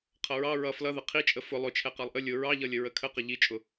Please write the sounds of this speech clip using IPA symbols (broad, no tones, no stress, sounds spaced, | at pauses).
qʰ ʌ ɹ ɑ ɹ ʌ f l ʌ ð ə qʰ i t͡ʃʼ ə f ʊ lˠ ʊ t͡ʃʰ ɛ q ɑ lˠ ʔ ə lʲ ʊ ɹ ɑ ʎ ʌ lʲ ə ɹ ə kʰ ə q ə ʎ i t͡ʃʼ ʊ